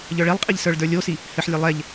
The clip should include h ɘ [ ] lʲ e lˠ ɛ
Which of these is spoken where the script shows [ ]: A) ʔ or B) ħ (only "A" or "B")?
B